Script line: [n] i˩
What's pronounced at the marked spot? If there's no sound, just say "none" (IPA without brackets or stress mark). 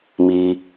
m